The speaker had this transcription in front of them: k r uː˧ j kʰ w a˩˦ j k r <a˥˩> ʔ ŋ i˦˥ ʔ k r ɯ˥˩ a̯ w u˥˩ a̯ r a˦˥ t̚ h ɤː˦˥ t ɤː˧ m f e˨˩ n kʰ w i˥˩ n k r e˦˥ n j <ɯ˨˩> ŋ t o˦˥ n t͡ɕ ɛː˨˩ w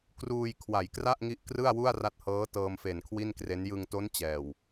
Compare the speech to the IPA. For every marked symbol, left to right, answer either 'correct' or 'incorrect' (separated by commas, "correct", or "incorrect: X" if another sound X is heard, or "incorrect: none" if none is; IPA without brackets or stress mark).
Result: correct, incorrect: ɯ˧